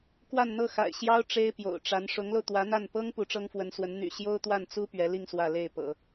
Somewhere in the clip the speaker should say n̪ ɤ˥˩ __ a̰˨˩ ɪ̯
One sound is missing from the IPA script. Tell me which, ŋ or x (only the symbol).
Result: x